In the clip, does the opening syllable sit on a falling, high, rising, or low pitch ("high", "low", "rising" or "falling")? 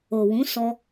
low